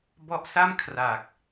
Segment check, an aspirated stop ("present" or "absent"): present